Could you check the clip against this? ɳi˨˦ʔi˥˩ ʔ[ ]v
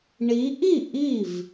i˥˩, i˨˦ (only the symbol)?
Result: i˥˩